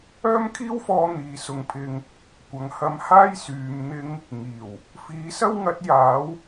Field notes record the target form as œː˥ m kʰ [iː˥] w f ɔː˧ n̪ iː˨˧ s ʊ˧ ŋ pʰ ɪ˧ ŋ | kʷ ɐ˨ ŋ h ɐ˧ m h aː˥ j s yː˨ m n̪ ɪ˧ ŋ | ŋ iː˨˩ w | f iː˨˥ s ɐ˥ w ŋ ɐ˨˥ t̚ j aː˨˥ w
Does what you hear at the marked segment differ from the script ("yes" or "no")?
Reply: no